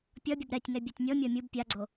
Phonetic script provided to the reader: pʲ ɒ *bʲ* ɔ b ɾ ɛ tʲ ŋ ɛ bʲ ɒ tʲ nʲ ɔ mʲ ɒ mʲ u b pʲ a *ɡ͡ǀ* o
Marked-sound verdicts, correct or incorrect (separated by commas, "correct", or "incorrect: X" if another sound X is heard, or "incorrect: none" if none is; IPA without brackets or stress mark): correct, correct